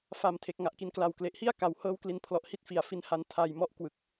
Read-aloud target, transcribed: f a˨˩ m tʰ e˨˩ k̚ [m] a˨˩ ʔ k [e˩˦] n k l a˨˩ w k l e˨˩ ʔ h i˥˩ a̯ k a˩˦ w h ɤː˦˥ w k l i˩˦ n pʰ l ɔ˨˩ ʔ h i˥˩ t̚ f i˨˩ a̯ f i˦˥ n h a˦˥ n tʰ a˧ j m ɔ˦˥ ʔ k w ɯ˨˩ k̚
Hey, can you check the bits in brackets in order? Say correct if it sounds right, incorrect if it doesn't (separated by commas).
incorrect, incorrect